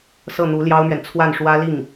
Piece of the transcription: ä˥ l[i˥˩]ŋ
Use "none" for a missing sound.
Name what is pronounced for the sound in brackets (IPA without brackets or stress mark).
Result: i˥˩